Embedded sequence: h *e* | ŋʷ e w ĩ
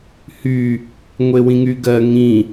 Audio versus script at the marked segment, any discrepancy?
yes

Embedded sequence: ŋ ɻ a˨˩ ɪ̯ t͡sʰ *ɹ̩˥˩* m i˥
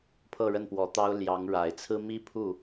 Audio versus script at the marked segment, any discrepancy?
yes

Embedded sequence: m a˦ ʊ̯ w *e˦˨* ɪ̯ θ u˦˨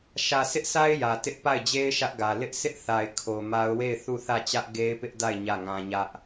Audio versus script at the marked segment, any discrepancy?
no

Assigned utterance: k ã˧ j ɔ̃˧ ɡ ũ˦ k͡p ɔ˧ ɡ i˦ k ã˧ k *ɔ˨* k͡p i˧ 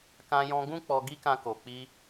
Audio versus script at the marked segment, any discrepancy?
yes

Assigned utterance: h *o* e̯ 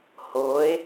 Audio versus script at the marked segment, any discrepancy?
no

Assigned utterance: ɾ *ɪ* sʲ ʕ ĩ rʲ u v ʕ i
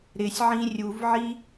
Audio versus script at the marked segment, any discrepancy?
no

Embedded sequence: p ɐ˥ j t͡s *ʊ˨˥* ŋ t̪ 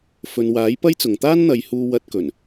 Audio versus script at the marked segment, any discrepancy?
yes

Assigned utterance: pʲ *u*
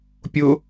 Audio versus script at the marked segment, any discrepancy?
yes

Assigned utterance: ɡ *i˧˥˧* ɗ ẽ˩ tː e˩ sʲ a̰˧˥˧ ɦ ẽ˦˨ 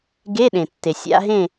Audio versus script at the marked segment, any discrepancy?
yes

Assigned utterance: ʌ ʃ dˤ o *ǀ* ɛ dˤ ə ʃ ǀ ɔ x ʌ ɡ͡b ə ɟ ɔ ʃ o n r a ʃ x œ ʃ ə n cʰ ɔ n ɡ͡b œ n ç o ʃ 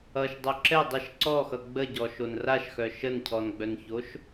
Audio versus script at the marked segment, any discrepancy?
yes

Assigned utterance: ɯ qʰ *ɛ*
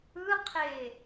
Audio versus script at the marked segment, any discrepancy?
yes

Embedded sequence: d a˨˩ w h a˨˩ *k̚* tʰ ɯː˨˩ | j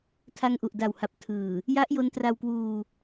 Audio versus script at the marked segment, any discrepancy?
yes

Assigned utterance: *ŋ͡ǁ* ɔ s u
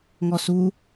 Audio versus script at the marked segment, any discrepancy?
yes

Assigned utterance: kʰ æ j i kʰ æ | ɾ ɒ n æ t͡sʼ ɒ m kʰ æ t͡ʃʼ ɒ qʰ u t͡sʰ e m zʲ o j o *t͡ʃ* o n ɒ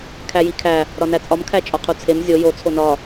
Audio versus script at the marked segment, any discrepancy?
yes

